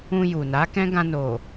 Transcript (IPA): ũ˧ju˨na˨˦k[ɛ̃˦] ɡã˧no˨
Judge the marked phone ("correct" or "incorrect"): correct